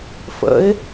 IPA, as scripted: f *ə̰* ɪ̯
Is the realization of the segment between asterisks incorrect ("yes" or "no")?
no